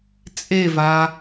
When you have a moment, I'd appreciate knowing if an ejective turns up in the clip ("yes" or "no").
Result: yes